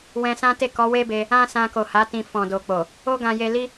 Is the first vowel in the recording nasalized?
yes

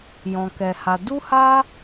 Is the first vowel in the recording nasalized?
yes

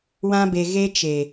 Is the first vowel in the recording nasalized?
yes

